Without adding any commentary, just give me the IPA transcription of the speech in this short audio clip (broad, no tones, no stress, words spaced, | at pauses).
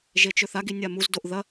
ʒet͡ʃɵθaɡi nʲamuzdoʔ ðɐ